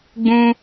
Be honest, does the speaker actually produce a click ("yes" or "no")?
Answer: no